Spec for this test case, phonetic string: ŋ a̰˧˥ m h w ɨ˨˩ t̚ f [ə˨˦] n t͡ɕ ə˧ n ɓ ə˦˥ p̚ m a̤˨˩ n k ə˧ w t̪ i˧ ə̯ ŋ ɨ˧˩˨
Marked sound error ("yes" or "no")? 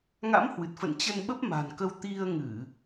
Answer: yes